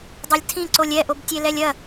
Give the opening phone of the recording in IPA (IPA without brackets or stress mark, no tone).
dˤ